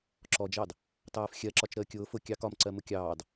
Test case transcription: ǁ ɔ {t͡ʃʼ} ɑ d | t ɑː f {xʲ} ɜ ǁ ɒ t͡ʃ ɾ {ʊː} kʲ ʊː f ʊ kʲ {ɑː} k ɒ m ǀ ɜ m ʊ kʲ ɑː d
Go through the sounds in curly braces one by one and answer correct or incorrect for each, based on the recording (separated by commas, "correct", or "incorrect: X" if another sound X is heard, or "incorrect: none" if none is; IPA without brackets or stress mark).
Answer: incorrect: d͡ʒ, correct, incorrect: əː, incorrect: ɑ